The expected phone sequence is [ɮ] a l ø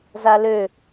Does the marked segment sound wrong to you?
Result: yes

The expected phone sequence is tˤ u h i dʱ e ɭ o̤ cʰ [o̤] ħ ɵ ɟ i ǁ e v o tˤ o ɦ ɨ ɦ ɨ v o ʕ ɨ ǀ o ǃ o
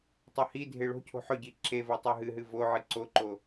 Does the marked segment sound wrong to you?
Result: no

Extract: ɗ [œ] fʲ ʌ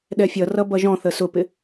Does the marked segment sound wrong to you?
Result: yes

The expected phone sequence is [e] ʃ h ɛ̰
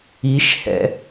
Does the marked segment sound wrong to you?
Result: yes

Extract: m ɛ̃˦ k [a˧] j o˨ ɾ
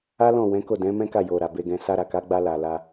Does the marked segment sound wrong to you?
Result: yes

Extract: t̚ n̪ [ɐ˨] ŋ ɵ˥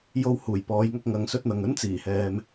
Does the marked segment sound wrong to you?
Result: no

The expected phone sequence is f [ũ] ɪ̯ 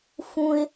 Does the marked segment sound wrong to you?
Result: no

